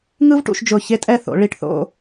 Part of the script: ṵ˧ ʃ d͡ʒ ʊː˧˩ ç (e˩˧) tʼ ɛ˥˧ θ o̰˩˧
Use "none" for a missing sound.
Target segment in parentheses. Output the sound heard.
e˥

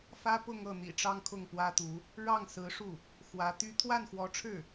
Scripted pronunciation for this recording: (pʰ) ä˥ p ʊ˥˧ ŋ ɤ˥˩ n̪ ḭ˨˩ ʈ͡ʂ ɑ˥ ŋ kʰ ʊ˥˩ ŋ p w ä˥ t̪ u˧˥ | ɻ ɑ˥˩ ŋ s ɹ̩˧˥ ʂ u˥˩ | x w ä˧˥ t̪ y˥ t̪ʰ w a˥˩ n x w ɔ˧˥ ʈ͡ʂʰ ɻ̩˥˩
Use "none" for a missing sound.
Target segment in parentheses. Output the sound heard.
f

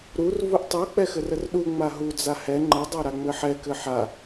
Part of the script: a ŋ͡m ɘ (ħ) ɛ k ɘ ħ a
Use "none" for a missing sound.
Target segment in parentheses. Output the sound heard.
ħ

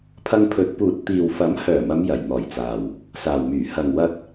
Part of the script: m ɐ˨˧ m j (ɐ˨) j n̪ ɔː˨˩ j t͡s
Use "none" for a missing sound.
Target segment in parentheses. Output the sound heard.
ɐ˨˩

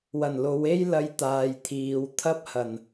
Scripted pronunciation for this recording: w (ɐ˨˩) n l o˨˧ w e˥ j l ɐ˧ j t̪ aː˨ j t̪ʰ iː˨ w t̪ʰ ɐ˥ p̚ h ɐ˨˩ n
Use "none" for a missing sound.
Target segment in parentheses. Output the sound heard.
ɐ˨˩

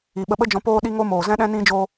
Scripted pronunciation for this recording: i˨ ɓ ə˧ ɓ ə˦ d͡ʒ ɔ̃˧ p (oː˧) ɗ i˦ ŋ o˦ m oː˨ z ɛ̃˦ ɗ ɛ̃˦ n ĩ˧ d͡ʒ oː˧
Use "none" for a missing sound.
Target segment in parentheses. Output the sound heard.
oː˦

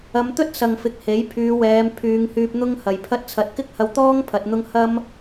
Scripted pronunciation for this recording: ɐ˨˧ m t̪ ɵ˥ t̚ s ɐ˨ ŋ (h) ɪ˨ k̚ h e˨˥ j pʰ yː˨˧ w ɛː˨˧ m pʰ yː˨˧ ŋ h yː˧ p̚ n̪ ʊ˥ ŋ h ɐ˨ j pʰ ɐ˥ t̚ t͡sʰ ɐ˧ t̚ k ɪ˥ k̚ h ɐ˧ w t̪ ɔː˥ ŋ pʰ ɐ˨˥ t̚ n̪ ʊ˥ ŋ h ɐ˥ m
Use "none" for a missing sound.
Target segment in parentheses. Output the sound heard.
f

